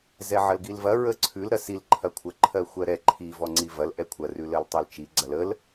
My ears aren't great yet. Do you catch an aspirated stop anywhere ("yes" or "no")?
yes